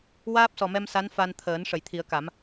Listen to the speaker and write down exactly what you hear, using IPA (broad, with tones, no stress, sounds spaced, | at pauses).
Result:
w aː˦˥ p̚ s ɔ˨˩ m ɛ˧ m s a˧˥ n f a˧ n t̪ʰ əː˨˩˦ n ʂ ə˨˩˨ j t̪ʰ i˨˩˦ ə̯ k a˨˩˦ m